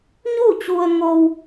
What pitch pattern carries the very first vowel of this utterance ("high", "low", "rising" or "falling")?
falling